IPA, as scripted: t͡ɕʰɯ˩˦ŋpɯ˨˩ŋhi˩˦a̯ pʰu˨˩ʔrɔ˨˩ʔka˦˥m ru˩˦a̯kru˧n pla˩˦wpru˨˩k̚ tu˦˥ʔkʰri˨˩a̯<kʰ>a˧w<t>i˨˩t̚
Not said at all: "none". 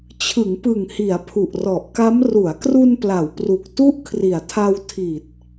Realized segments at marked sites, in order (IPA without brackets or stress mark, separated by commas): tʰ, tʰ